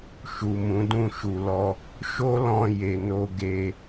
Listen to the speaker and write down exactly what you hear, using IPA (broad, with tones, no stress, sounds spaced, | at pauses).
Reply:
ʃ u˨ m ũ˨˦ d ũ˦˨ ʃ u˨ l ɔ˧ | ʃ o˦ l ɔ̃˧ j e˧ n o˦ ɡ e˧